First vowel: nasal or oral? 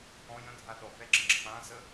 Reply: nasal